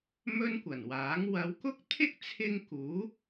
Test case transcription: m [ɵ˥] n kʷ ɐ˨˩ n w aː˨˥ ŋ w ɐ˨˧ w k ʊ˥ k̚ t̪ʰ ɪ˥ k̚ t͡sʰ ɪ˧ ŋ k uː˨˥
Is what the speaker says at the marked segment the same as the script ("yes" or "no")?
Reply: yes